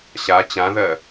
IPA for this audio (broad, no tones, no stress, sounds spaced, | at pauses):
ɕ a t͡ɕ ã ð ɜ